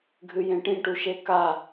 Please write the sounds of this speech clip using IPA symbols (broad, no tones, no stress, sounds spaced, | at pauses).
ɡʱ ɨ j ẽ ʈ ĩ ʈ u ʃ e k a